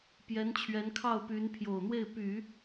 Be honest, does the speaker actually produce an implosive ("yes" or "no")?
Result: no